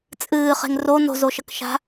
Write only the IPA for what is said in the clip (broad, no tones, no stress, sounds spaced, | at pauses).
t͡sʼ ɨː χ e̤ ŋ r o n o̤ z o ʃ ɐ k ʃ a̤